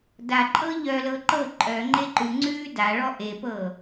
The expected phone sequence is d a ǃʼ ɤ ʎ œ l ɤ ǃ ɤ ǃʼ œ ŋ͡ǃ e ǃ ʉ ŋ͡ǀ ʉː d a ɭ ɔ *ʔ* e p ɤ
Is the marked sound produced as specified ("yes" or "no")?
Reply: yes